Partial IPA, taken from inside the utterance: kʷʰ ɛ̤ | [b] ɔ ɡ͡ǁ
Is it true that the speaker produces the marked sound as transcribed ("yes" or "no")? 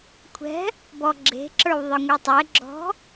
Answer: yes